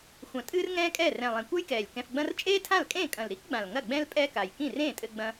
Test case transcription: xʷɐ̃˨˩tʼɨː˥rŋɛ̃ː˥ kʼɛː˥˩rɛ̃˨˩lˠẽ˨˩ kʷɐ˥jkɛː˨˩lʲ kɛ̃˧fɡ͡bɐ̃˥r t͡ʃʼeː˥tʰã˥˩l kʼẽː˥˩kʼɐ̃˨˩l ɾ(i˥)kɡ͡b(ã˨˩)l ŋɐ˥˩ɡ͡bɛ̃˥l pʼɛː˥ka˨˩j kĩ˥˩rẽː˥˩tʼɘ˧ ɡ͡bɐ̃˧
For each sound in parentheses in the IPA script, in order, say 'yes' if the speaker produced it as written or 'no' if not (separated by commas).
yes, yes